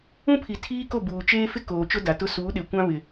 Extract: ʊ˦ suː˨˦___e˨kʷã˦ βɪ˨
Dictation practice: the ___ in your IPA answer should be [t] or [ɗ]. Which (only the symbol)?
ɗ